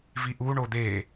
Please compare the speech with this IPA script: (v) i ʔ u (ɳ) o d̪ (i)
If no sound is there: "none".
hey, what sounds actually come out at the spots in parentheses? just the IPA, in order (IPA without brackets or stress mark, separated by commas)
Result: v, ɳ, e